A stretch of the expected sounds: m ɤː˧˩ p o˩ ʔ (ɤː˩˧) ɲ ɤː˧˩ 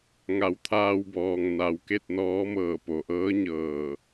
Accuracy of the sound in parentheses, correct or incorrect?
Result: incorrect